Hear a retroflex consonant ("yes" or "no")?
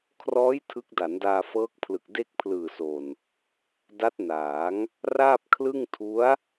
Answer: no